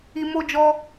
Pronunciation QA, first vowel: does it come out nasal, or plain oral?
oral